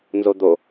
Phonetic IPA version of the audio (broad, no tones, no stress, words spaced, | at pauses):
nzod̪o